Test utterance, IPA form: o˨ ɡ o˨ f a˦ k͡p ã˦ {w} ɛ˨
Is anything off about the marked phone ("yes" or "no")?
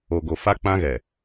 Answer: yes